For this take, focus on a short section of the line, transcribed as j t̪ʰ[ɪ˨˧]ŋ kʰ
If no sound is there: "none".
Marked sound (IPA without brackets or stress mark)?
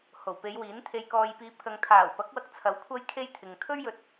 ɪ˨